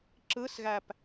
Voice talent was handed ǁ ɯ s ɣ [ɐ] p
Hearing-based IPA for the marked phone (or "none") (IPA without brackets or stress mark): æ